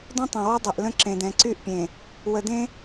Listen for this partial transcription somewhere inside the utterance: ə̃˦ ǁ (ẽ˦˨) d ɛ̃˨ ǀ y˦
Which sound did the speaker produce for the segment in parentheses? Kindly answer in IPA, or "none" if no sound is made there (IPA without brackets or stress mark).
ẽ˨